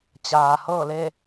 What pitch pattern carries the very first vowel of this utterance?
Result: low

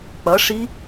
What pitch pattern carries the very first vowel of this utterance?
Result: rising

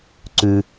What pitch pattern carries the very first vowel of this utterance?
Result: low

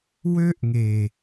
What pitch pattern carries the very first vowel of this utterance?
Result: high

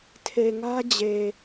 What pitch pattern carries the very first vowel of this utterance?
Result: low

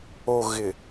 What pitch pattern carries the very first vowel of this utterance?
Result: low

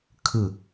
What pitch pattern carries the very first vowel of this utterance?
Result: low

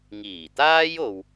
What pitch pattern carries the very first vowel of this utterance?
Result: low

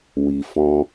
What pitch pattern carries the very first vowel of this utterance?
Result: low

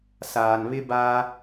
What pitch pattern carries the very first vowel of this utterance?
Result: low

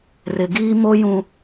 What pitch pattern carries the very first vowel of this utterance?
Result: low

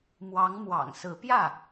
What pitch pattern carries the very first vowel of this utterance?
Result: rising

